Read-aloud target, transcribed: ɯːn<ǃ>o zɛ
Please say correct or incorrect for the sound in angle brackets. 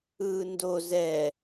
incorrect